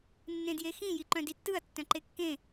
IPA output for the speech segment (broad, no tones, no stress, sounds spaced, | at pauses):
nː ẽ d j e x ĩ j i ǃ œ̃ d i tː ɯ ɐ̯ tː œ̃ ǃ e kː ẽ